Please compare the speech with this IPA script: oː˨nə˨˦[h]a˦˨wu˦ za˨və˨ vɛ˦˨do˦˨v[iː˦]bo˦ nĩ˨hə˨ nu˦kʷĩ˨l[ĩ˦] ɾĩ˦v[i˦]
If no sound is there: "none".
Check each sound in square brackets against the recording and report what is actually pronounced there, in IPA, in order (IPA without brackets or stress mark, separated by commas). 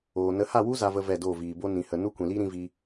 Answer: h, iː˨, i˦, i˧